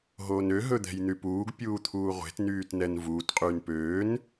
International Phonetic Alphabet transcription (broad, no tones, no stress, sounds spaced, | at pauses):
ɦ oː n ø ɦ ɵ d̪ ɛ̤ j n̪ y p uː ɡ pʲ uː t̪ʰ uː ʁʷ e̤ t n yː t n ɛ n v uː t qʼ yː n p øː n